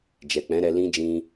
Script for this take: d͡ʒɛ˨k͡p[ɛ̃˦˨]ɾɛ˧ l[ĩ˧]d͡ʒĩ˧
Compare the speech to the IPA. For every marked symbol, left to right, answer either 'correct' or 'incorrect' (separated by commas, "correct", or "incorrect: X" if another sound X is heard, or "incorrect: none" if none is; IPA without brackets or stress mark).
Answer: incorrect: ɛ̃˨˦, correct